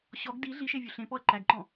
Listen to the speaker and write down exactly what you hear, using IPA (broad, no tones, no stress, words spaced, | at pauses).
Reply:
ɕɔɡ di ɮiʃe vʲuɬẽpɔɐ̯ ǃæɡǃɔ̃